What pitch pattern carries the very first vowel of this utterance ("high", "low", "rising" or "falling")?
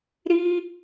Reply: high